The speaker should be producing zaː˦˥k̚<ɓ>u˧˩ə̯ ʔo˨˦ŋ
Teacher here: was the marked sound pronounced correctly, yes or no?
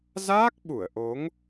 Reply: yes